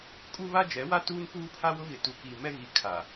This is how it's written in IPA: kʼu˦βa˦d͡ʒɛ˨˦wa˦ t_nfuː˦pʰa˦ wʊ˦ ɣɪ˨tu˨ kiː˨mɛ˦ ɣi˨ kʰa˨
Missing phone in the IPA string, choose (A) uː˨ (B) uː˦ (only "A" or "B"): B